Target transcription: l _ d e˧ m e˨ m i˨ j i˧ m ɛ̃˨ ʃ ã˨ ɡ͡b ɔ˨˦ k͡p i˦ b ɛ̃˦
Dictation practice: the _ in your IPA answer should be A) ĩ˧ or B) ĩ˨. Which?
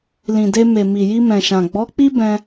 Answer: B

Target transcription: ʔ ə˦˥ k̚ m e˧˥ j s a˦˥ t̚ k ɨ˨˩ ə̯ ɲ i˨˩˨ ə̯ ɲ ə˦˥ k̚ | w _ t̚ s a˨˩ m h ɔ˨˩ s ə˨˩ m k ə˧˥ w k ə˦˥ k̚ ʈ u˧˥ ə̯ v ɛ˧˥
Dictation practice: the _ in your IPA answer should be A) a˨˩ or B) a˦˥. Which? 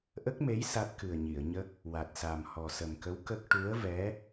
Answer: A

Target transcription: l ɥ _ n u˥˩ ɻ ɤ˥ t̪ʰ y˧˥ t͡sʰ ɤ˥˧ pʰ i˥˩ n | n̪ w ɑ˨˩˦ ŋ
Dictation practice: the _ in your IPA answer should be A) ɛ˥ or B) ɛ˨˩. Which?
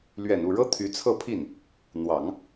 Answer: B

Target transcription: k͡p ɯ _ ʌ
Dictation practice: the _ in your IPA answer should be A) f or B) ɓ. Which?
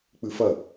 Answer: A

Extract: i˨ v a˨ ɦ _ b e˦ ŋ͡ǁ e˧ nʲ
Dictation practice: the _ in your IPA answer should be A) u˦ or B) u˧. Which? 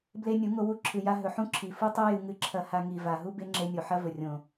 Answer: A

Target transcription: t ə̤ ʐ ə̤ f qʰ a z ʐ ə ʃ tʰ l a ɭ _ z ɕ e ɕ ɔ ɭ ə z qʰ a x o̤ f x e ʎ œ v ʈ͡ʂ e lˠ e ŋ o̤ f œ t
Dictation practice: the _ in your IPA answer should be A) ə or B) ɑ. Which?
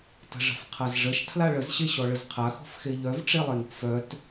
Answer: A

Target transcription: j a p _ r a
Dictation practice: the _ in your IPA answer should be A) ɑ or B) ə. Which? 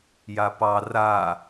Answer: A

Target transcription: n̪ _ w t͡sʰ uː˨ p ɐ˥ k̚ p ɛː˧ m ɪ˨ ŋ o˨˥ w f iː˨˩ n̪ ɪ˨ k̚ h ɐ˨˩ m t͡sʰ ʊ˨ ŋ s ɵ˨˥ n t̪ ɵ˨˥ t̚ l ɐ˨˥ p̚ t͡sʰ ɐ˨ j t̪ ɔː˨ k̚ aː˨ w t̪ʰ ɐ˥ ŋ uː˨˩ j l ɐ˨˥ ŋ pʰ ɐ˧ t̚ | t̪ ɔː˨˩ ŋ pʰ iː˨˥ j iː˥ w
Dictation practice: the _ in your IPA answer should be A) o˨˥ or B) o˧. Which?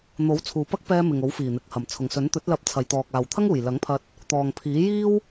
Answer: A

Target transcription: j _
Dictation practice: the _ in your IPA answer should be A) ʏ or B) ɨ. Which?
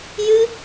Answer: B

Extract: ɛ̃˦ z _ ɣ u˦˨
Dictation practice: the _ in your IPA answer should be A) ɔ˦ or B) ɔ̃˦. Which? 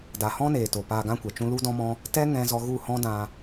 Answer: A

